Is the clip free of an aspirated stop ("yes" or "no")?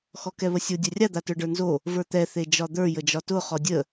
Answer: yes